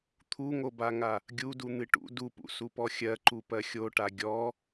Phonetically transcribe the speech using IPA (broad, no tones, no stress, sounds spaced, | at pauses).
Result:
t̪ʰ u ŋ o b a ŋ a | ɡʲ u d u n̪ ɨ ʈ ṵ d u p ṵ s u p ɔ xʲ ɜ ǃ u p ɜ xʲ o ʈ a ɡʲ ɔ